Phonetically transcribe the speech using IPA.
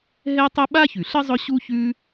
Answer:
ɦɛ˦tˤʊ˦ ɓa˥çʉ˩ɬə˥zˤʊ˦ ɕu˦çʉ˦

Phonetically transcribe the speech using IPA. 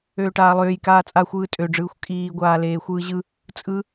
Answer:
øːʈaːlˠøːj kaːt͡sʼaxʷɯː tʼøɖ͡ʐɯːxʷ kʼiːɡʷaːleː xʷɯːʑɯ | t͡sʼɯ

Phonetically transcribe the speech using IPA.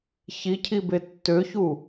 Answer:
çicʰibe tːøçu

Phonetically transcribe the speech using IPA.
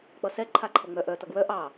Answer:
k͡pʌsɛ ǃʰaǃʰʌŋ͡mœʔ œ tʌɡwœ ʔɑ

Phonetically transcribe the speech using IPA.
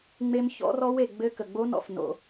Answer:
ŋ͡me˧m çɔ̰˦˥rɔ˦˥we˩ ɡ͡bɘ˧ kə˩ɡ͡bo˦˥nɔ̰˩˧˩f no̰˧

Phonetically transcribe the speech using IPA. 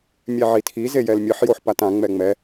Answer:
mʲɛʕitʰi zejɛlmʲɯħ joħpatã ŋ͡mɛŋ͡mɛ

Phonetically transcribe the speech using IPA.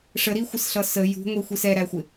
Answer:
ʂəɾixʷɪsɬʌ sə jṳŋʷixʷis ɛɾæxʷɪ

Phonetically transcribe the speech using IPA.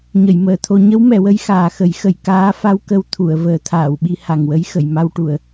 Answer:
ɲə˨˩˨jməː˨˩˨t̪ʰo˧ ɲə˧˥wmɛ˨˩˨wə˧j xaː˨˩xə˨˩˦jxə˨˩˨j kaː˧˥fa˧w kə˧wt̪ʰu˨˩˨ə̯ vəː˨˩˦t̪ʰaː˨˩˨wɓi˧ ha˨˩ŋwə˧˥j xə˨˩˨jma˧wʈu˨˩˨ə̯

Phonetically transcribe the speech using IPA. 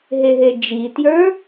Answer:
ɦeɦed͡ʒitjə˞

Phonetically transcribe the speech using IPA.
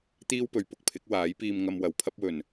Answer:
t̪iː˥wpɵ˨ɥpʊ˨k̚pʰɪ˨˥k̚ waː˨˥jpiː˧m ŋɐ˧m wɐ˨˩wpʰɐ˥p̚wɵ˨˩n

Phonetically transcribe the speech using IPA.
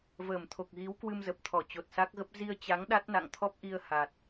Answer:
vəː˧˩mt̪ʰo˨˩k̚ ɣi˨˦w kwɨ˧mzə˨˩p̚t̪ʰɔ˧˩ t͡ɕo˨˩t̚sa˦˥k̚ɣə˦˥p̚ zi˧ə̯t͡ɕa˨˦ŋ ɗa˦˥t̚na̰˧˨ŋt̪ʰɔ˦˥p̚ʔi˧ə̯ ha˨˩t̚

